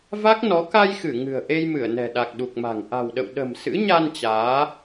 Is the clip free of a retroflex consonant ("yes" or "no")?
yes